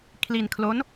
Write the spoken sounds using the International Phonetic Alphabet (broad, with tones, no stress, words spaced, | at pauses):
kʰli˧nkʰlo˦˥n